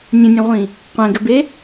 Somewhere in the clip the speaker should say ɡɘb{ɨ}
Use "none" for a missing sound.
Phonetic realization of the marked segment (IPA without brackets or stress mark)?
e